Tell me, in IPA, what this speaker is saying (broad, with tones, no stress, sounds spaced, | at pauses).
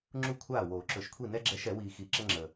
ŋ͡ǁ u˥˩ kʷʰ aː˥˩ w oː˨˩˦ ǁ ɵ˨˩˦ ʃ kʷʰ i˥˩ n ɛ˦ ɡ͡ǁ ɛ˨˥ ʃ ɛ˨˩˦ w iː˨ x i˨˩˦ ǁ ə˦ ŋ͡ǁ əː˨